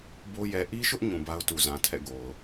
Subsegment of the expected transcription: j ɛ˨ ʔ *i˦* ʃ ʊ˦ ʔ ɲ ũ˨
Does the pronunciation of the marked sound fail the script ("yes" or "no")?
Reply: no